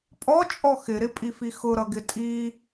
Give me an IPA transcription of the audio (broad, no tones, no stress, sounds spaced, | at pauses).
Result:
pʼ ɔ t͡ʃʼ ɔ x ɪ ɾ ɪ pʼ i f i x ʊ ɾ ʌ ɡ ɪ tʼ i